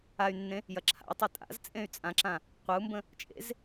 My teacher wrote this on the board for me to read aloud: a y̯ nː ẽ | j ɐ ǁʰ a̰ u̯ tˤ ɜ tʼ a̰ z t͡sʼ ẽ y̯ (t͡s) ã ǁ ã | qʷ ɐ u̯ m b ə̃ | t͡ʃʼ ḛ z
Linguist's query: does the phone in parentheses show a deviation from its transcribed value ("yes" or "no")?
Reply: yes